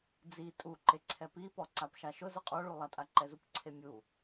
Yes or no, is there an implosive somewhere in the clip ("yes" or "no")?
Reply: no